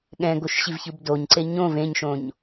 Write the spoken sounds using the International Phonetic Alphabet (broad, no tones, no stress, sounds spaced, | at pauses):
ɠ ɛ̃ ɡ o ʃ ɕ i v ç ɯ b d o ɲ ǀ e ɲ õ v ẽ ɲ ʃ õ ɲ